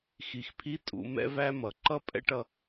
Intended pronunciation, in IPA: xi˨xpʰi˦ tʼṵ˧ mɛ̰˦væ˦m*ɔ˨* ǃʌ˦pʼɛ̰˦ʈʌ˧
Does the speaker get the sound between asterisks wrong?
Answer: yes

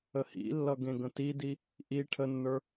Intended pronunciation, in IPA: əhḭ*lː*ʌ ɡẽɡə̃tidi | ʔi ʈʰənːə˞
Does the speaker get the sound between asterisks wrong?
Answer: no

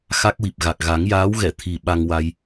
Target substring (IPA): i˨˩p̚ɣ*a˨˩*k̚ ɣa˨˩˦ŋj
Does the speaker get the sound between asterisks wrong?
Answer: no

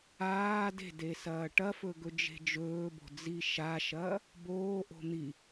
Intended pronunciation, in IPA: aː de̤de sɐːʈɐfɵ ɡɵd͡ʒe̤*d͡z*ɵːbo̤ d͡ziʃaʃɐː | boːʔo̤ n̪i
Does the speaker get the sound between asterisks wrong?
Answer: yes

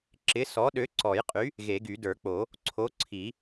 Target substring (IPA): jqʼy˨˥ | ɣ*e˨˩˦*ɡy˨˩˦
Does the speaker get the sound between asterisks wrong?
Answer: no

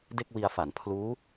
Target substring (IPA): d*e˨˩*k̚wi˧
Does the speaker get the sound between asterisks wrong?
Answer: yes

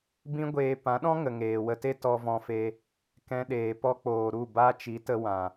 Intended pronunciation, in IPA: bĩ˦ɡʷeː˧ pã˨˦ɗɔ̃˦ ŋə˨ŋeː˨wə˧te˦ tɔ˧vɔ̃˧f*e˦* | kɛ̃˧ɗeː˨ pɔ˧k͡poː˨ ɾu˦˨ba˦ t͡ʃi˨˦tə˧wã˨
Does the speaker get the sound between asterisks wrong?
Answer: yes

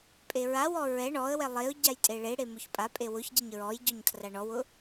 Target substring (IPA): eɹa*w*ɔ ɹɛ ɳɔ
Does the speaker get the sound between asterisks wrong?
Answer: no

